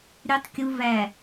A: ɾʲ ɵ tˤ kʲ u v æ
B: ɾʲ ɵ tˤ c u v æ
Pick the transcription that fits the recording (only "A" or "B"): A